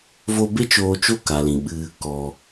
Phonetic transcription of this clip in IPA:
v o˧ b e˦ t͡ʃ oː˧ t͡ʃ o˦ k a˨ l ĩ˨ ɓ ɨ˧ | k ɔ˨

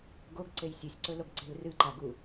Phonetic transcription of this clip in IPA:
ɡ o ɡ ǀ e j sʲ ɨ sʲ ǀ ɵ l o ɡ ǀ e̤ l r ɨ ǃ a ɡ u

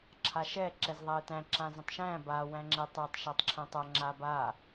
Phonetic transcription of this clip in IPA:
ǁʰ a ʃ ɛ ǁ ɛ z ðˤ æ e̯ t æ̃ ǁ ã z ə̃ tˤ ʃ æ̃ b a w æ̃ ŋ͡ǁ ɛ tˤ æ tˤ ʃ a tˤ ǁʰ ɛ̃ tˤ a ŋ͡ǁ a b a

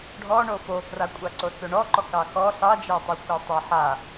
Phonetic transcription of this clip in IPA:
ɖʱ ɔ ɳ o f o k r a kʷʼ a ǀ o t͡s o ɳ ɔ ǃ ɔ k ɑ x ɔ ɬ ɑ d͡ʒ a tˤ a xʷ ɑ tˤ a ħ a

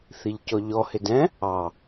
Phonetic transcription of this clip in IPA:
θ i ʎ c ɔ ʎ ɔ h ɪ d ɛ̃ | ɑ

